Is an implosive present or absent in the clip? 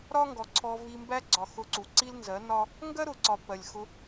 absent